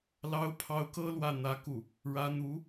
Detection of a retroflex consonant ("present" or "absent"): present